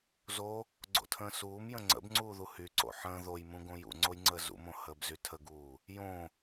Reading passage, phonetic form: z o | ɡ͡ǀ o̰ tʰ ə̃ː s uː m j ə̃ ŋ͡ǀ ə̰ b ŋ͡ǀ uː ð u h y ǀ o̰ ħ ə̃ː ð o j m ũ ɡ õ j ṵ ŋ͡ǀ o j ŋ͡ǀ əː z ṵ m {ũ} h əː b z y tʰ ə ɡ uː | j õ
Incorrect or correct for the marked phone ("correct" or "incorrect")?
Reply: incorrect